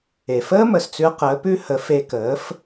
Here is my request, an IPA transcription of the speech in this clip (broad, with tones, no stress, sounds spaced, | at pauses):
e˩ f əː˥ m ə˩ s t͡s ʉ˧ ə̯ q əː˩˥ p ʉ˥ h ə˩˥ f e˧ k əː˩˥ f